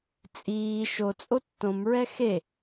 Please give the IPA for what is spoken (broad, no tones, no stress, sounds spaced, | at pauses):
t͡sʼ iː ʃ o t͡sʼ o tː õ m ɹ ɛ x e